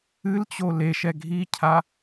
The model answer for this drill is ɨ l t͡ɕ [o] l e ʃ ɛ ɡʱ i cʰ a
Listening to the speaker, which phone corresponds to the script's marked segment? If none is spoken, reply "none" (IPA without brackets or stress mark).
o